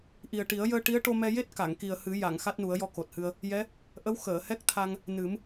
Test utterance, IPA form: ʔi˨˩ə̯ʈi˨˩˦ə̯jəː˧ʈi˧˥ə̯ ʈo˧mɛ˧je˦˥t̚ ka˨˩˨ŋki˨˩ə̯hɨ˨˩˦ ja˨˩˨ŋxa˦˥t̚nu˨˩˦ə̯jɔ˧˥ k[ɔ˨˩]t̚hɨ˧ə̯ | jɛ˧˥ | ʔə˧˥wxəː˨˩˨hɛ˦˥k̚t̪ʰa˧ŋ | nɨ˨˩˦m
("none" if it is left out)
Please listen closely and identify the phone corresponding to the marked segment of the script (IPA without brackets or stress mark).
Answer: o˨˩